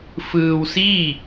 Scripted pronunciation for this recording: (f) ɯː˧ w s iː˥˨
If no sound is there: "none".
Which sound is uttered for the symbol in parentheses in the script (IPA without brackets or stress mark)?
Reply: f